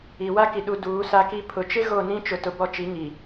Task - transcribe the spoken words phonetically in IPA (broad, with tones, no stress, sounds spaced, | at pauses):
i˨ w a˦ k i˨ ɗ u˨ d uː˨˦ s a˦ k i˦ pʰ ʊ˨ t͡ʃ ɪ˦ ɣ o˦˨ n ĩ˦ t͡ʃ ʊ˨ t ʊ˨ b ɔ˦˨ t͡ʃ i˨˦ ŋ i˨